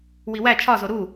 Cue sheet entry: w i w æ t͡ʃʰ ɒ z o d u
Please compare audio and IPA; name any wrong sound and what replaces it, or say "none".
d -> ɾ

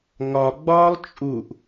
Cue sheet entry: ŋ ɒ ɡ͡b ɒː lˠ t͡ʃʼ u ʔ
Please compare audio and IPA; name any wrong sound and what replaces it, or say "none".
none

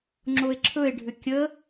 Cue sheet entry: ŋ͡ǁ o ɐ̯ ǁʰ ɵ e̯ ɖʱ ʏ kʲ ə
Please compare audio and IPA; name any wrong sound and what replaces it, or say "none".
ɐ̯ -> e̯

